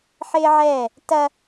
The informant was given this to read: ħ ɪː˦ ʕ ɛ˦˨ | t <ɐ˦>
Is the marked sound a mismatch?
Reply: no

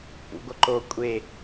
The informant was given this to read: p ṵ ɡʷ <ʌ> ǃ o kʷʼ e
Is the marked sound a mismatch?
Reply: no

